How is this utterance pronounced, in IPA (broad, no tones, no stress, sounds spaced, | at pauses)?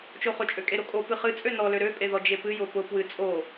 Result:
t͡ʃ o χ ʊ t͡ʃʼ ø kʼ e ɾ o kʼ o p ɨ χ ɨ t͡sʼ ø n ɔ l ø ɾ ø pʼ e ð ɔ d͡ʒ e p ɨ j ʊ p ʊ p w ɨ t͡sʼ o